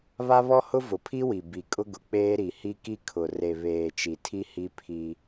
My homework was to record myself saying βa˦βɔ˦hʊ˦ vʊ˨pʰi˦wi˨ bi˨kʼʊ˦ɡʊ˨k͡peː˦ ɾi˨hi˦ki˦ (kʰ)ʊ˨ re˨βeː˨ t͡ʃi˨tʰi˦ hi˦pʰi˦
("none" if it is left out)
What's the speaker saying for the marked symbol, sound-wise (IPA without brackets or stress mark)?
kʰ